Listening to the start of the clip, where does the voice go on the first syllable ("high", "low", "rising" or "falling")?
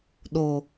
low